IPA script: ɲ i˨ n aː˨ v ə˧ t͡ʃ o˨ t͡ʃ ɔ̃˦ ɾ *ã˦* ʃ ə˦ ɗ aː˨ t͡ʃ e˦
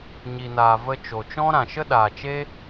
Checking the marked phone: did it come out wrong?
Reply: yes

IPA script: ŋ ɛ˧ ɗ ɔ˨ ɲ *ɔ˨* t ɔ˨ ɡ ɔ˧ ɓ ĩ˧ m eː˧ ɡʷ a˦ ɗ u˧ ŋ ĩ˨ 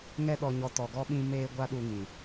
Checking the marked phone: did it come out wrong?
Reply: no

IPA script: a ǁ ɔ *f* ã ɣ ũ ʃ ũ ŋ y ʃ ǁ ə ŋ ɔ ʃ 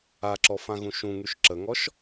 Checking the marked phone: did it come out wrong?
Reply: no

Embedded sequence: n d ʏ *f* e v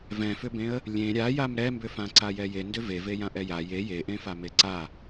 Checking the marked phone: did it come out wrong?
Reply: yes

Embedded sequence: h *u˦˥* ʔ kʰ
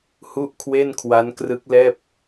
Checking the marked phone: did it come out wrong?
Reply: yes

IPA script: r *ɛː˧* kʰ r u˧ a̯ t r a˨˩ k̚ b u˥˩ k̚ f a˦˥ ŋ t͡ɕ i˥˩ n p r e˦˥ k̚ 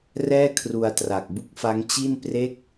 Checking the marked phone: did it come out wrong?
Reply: yes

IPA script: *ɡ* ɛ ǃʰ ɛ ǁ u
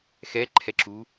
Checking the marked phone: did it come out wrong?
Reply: yes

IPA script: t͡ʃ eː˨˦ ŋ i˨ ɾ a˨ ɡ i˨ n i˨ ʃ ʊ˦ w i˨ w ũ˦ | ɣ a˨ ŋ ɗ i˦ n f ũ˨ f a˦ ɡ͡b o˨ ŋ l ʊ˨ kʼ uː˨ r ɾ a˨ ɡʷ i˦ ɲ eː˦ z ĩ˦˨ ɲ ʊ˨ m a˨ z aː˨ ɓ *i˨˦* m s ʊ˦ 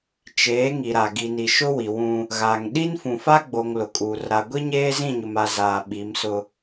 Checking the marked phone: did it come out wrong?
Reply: no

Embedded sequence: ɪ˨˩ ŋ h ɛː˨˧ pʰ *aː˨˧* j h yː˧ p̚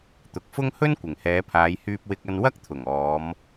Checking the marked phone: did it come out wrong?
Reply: no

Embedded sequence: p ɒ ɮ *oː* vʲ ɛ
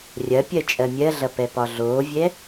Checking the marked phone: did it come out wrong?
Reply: no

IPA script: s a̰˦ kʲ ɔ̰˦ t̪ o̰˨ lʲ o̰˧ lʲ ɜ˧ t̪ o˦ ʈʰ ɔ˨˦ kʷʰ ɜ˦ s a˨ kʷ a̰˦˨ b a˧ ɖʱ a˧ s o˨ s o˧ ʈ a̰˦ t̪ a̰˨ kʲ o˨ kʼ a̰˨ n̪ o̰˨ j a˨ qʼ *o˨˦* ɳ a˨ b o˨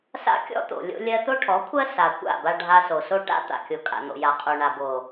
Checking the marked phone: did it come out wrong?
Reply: yes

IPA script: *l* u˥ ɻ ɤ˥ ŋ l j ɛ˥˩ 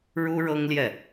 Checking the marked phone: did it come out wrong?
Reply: yes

